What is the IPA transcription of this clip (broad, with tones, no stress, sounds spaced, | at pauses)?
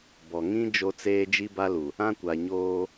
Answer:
b ɔ˨ ŋ ĩ˦ d͡ʒ o˦ t͡s eː˦ d͡ʒ i˦ b a˦ l u˨ | ã˦ kʷ a˨ ɲ oː˦